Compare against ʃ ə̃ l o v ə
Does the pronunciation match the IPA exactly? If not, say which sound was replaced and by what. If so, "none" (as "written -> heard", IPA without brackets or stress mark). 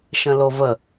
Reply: none